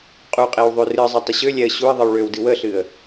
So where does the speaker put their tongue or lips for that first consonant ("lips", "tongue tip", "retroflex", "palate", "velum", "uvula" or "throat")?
uvula